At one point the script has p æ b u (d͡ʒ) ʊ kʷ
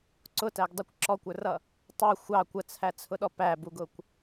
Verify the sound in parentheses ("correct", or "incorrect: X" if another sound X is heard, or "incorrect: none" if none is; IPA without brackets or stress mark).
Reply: incorrect: ɡ